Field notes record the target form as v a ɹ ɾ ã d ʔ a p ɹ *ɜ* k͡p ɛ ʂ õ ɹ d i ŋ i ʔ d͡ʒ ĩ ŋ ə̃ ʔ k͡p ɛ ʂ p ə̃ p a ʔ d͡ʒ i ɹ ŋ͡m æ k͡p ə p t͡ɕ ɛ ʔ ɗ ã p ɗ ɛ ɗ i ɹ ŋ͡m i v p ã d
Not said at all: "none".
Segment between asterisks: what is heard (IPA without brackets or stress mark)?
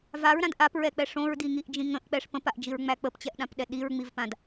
ɛ